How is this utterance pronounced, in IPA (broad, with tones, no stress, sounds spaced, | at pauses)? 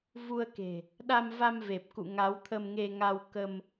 v u˧ ə̯ k e̤˨˩ | ɗ a˧ m v a˧ m v e˨˩ p̚ k ṵ˧˨ ŋ a˨˦ w t̪ʰ ə˧ m ŋ e˧ ŋ a˧ w k ə˧ m